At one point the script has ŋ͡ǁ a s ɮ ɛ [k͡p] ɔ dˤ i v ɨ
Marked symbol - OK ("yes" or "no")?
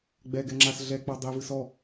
yes